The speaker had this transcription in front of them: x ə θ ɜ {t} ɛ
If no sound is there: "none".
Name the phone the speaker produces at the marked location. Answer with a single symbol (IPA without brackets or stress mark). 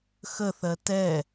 t